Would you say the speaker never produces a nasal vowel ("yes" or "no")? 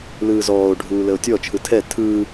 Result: yes